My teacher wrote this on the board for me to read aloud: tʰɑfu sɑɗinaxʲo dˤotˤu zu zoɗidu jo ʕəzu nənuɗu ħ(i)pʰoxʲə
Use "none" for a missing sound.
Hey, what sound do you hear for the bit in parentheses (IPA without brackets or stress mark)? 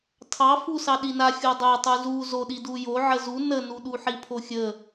i